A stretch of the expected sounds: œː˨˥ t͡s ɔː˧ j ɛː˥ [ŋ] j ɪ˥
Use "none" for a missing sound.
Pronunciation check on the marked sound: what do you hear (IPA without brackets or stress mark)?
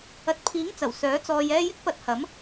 none